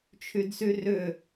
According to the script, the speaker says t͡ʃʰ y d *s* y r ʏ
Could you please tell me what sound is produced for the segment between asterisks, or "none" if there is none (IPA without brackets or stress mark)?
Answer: s